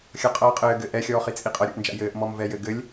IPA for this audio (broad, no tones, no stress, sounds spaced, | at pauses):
xʲ ʌ qʼ ʌː qʼ ɘː ɡ ɘ ʔ ɛ xʲ ɔː χ i t͡sʼ i qʼ ʌ ɾʲ ṵ ʔ n d͡ʒ a̰ j ɘː ʔ m ɔ m v ɛ j ɘ ɡ ɘ lʲ